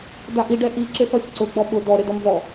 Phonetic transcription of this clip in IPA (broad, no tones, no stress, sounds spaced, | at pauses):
d a ʔ i ɖ ɛ ʔ i ǁ ɪ s ɔ sʲ ǀ ʊ ɡ͡b ɔ ɓ ʊ d ɔ ɾ ɪ d ɔ m v ɔ